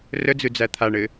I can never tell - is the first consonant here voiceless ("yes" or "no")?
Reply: no